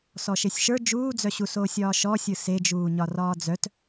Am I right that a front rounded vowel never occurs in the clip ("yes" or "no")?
no